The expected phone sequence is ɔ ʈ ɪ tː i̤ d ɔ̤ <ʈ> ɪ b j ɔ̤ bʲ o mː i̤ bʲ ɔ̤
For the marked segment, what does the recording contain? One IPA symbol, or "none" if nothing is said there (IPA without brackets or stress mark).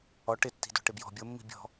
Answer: ʈ